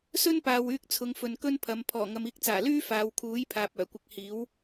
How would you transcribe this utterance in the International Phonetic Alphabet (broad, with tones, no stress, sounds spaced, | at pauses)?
s ɵ˥ n p aː˨ w yː˧ k̚ t͡sʰ ʊ˨˧ ŋ f ɵ˨ n k ɵ˥ n pʰ ɐ˨˧ m pʰ ɔː˨˩ ŋ ɐ˨ m iː˧ k̚ t͡s aː˨˩ l yː˥ f aː˨˧ w kʰ uː˨˥ j pʰ aː˨ p̚ œː˨˩ kʷ ɪ˧ k̚ h iː˨˥ w